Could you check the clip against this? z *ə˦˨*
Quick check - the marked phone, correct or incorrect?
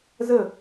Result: correct